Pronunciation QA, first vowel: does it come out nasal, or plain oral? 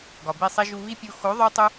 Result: oral